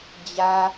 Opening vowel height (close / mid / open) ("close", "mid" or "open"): open